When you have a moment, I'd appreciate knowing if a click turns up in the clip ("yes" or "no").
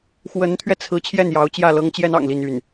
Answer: no